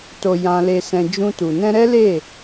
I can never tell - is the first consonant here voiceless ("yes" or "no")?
yes